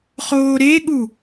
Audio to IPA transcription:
χoːɾeɠu

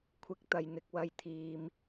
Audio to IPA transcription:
kʷʰɪ˨˥k̚t̪ɐ˨j n̪ɪ˨k̚ wɐ˨jt̪ʰiː˨m

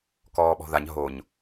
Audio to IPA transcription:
kɔːɓɔ̤ðaɲ ɦoɲ

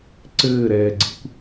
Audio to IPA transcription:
ǀɘːɾɛːɡ͡ǀikʷ

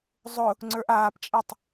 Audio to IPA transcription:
zˤʊ | ŋ͡ǀə˞ʔaːpt͡ʃʼɛtˤ

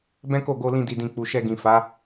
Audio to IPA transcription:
bɛ̃˦ko˦˨ ɡo˧lĩ˧di˨dĩ˨ k͡pu˨ʃɛ˧ɡĩ˨ fa˨˦

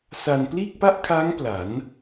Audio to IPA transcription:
sa˧n pliː˥˩k̚pa˥˩ʔkʰaː˦˥ŋ pla˩˦n

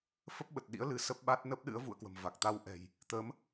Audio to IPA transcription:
fə˦˥p̚ɓə˨˩t̚ɗḭ˧˥ə̯ lɨ˧ sə˦˥p̚ɓa˦˥t̚ nə˦˥p̚ ɗɨ̰˧˥ə̯vṵ˧˨ə̯ kwə̤˨˩mva˨˩k̚t̪a˧wʔɛ̤˨˩j | t̪ə˨˦m

